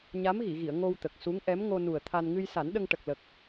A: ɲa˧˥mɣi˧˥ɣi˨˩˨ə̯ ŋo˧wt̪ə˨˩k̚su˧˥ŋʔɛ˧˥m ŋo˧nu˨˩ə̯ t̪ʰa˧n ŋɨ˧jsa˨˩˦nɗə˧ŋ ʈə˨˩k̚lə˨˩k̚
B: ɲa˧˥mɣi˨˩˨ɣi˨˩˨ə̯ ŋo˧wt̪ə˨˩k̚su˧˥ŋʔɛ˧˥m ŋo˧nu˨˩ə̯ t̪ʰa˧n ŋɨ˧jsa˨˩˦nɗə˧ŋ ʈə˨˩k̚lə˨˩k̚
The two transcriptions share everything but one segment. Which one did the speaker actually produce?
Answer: B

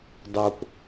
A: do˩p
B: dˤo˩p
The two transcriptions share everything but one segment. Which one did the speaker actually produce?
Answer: B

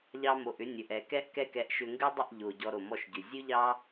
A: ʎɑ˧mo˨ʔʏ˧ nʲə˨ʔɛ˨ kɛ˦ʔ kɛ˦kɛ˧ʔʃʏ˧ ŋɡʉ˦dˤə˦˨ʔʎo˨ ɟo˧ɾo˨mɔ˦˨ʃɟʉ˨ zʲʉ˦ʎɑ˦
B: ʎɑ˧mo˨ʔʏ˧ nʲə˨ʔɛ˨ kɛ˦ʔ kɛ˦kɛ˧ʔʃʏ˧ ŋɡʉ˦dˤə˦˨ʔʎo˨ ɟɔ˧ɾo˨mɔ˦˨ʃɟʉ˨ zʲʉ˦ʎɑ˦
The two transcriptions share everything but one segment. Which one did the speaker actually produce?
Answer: B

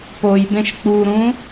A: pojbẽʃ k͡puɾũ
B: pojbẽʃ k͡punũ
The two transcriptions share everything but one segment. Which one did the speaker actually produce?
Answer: A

